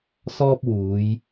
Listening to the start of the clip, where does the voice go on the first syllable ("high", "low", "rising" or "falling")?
high